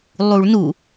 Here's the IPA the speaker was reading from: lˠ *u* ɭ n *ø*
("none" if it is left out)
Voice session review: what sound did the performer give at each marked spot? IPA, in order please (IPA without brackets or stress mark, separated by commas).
u, u